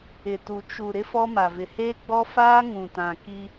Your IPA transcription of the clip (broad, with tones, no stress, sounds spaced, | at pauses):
ɪ˨ t u˨ t͡ʃ u˨ ɾ ɪ˦ f ɔ˦ m a˨ v ɪ˨ h eː˦ ɡ͡b ɔ˦ f aː˦ ŋ ũ˨ t ã˨ k i˦